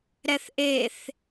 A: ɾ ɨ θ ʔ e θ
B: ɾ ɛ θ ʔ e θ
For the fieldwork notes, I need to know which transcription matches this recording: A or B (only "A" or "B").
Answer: B